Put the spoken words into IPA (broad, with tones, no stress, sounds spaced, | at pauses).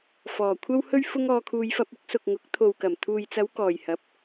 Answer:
f ɔː˨˩ kʷʰ ɐ˥ w h ɵ˥ ɥ f ʊ˥ ŋ ɔː˧ kʰ uː˧ j f ɐ˧ p̚ ʊ˨˥ k̚ s ʊ˨ k̚ ŋ ʊ˨˥ k̚ t̪ʰ o˨ w k ɐ˨˩ m t̪ʰ uː˨ j t͡s ɐ˨˧ w k ɔː˨˩ j h ɐ˨˥ p̚